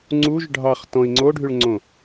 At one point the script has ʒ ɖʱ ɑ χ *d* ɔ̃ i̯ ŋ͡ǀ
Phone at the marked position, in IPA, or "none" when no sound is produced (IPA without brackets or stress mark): t